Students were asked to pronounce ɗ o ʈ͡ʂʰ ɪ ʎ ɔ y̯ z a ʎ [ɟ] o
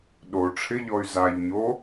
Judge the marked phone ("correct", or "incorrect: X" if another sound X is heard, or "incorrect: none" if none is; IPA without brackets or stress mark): incorrect: ɲ